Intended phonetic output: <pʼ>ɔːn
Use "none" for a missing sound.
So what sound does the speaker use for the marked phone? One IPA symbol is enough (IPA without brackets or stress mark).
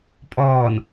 pʼ